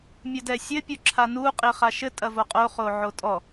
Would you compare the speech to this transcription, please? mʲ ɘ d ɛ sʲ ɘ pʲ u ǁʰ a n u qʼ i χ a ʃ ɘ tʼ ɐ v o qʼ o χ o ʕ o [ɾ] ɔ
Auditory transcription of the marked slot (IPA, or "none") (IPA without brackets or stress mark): tʼ